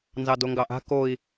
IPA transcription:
nzɑdoŋɡɑʔa̤ koi̯

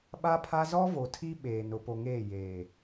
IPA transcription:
ɓa˦pʰa˦ zɔ˦vo˨tʰi˦ ɓeː˨n ʊ˨po˨ŋeː˦˨ jeː˨

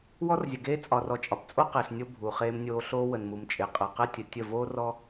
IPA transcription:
wɔ˦rzʲə˨ɡeː˦ t͡sʼɒ˨rɔ˨t͡ʃʼɒ˨pt͡sʼo˦ qe˨ɬnʲo˦ bʱuː˨χeː˦mnʲoː˦ ɬoː˦wə˨nmu˨mt͡ʃʼe˨ qʼəː˨qe˦tʲə˨ tʲə˦˨ voː˦rɔ˦

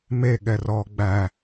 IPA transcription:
meɠɛrɔː ɡ͡bæ

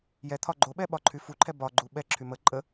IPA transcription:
jɛt̪ʰɒ ɡ͡ǃoɓɛ ɓɒǃʰyfuǃʰɛ bɒɡ͡ǃu ɓɛǁʰy mə ǃʼə

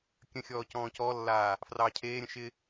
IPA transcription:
kʲə̃xʲɔː cɔ̃ːcɔlːaː | frɑːcʰeːɾʲə̃ ʃɪ

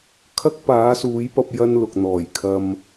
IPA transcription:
kʰɐ˥k̚paː˨˥suː˨˥jpɐ˧p̚ jɐ˥nlʊ˨k̚n̪ɔː˨˩j kʰɐ˨m

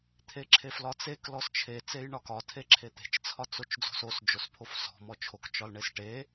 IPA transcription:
t̪ʰeǁʰeflɒt͡sek lɔst͡ʃʰe t͡sejɳɒkɒ tʰeǁʰet̪e̤t͡ʃ t͡sʰɒt͡sot͡ʃd͡zo̤sos d͡ʒospʰofsɔ̤ mɔt͡ʃʰok t͡ʃɒlɳesʈe

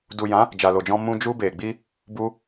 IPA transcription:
du˨jã˨˦ | d͡ʒa˨lo˨d͡ʒɔ̃˧ mũ˧ d͡ʒu˧be˨ɡ͡bi˧ | bu˧

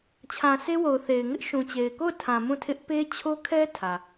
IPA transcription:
t͡ɕʰã˨se˦wo˨ʊ̯ θe˨ɪ̯ ŋɪ˦ʔʃũ˨t͡ɕe˨ɪ̯ko˦˨ʊ̯ tʰã˨ mũ˦˨tʰɪ˦ʔ pe˦t͡ɕʰo˦kʰɛ˦ tʰä˨

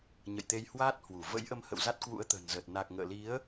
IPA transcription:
ɲə̰˧˨jt̪e˧jhwaː˦˥t̚hwu˧˩ və̰˧˥jʔə˧mhə̰˧˨w za˦˥t̚kwṵ˧˥ə̯t̪ə̤ː˨˩nzəː˨˩t̚ na˨˩k̚ŋə̰ː˧˨li˨˦ə̯

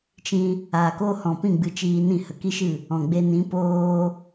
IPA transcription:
t͡ʃĩ˧ | aː˨koː˧hɔ̃˨pĩ˦˨ ɡ͡bɨ˧t͡ʃiː˧nĩ˦˨ hə˨ki˦ʃɨ˦˨ | ɔ̃˨ɡ͡be˧ nĩ˨˦poː˧

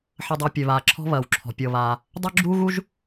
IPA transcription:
ħɐ˧dˤɐː˧pʲø˩βaː˩ ǁʰɔ̤˥ βɐː˩wǁʰɔ̤˩ pʲɤ˩βaː˩ | dˤo˥ɡ͡ǁuː˥ɣu˥ʒ

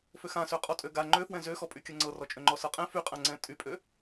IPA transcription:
føxãsø qʼɔtʼøɡa ŋ͡ǃøfwɛ̃ zøxɔpʼy kʲɤŋ͡ǀɤrɔt͡ʃʼø ŋ͡ǃɔsɤqʼɛ̃ fyqʼãŋ͡ǀɛ̃ tʼypʼø

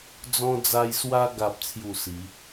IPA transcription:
d͡zɔ̃˧d͡za˧j swa˧ɡa˨p̚t͡sʰju˨˩ si˨˦

